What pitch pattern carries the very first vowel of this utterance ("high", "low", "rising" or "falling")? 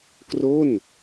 falling